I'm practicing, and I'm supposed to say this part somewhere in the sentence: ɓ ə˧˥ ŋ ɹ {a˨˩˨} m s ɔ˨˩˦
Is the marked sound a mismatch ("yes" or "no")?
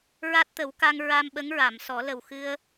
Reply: no